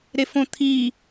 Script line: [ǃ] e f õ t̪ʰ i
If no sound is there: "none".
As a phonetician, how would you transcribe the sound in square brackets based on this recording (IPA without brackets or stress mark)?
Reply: ɾ